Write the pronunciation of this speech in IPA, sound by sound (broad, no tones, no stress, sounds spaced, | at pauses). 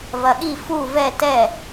v ɐ ɠ i f u v ɛ t ɛ